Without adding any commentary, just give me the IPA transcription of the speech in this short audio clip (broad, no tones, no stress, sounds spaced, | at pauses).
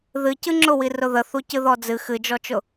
ð ɨ c ɨ ŋ͡ǁ ʊ w i r ʊ ð ə θ u c ɨ ð ɔ d͡z ɨ x ɨ d͡ʒ ɔ t͡ʃ ʊ